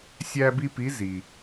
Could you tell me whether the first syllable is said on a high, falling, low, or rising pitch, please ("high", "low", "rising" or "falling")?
high